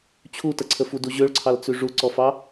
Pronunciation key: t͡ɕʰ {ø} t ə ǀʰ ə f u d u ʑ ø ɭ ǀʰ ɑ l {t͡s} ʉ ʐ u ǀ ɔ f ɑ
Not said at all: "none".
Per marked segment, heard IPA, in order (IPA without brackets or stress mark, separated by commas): u, t͡s